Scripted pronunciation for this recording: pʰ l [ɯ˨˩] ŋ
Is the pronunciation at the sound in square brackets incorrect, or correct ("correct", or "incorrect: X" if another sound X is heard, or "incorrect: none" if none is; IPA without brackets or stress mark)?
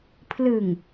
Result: correct